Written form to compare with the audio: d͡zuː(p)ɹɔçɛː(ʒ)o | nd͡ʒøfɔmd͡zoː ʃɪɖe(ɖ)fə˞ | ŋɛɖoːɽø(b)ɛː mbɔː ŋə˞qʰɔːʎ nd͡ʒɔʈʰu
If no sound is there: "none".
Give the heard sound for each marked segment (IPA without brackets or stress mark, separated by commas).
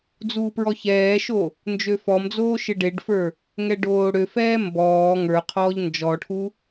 p, ʃ, ɖ, f